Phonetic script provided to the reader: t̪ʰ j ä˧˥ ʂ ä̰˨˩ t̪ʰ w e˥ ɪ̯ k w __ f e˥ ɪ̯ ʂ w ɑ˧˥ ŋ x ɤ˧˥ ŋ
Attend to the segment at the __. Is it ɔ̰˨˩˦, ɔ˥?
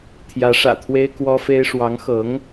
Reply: ɔ˥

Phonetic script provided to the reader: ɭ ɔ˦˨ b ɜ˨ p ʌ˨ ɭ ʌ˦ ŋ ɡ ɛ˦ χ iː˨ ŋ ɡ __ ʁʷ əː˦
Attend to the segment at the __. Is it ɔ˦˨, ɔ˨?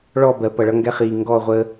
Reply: ɔ˦˨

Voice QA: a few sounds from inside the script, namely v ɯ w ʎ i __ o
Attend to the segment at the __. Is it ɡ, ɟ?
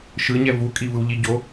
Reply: ɟ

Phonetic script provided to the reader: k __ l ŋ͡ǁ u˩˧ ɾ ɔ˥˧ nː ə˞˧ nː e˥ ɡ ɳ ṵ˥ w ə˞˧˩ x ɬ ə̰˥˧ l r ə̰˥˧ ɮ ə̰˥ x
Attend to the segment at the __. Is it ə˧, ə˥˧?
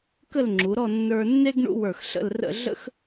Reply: ə˥˧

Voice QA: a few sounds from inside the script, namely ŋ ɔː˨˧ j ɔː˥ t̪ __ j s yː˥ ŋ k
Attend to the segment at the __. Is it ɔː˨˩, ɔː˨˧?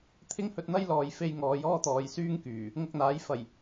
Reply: ɔː˨˧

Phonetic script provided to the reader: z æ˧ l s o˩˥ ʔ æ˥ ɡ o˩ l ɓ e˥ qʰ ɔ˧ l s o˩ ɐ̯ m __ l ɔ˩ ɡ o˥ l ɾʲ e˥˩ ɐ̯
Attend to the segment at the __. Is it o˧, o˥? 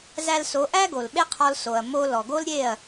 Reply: o˧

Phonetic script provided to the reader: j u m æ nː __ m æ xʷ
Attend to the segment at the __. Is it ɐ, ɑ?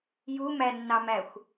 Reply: ɑ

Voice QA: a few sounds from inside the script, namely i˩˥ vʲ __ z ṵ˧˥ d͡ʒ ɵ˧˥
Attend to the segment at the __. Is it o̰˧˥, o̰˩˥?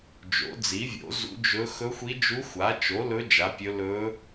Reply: o̰˩˥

